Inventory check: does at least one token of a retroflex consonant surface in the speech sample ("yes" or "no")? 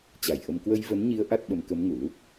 no